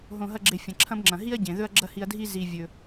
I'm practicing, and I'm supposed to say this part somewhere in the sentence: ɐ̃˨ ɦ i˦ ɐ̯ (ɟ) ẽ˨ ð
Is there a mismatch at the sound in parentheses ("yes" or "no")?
no